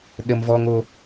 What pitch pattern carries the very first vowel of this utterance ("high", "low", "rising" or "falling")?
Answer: high